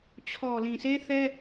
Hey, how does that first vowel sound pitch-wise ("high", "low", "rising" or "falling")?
low